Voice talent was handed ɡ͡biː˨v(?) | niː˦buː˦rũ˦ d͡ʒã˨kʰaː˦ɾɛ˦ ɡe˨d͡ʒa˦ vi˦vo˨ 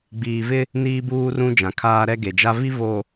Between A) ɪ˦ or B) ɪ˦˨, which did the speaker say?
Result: A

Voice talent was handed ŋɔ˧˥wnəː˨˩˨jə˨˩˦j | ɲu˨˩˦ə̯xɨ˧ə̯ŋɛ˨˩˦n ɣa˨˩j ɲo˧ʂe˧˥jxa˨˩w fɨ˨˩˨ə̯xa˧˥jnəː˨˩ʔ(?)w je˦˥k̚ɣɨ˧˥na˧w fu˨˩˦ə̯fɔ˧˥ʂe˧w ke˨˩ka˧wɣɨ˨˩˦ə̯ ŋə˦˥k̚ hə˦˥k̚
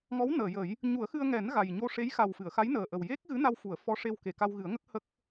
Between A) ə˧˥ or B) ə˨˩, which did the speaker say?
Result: B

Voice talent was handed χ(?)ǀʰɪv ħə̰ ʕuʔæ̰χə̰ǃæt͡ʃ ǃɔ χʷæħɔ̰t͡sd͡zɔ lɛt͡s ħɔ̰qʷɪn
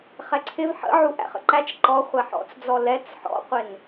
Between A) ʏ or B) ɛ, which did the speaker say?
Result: B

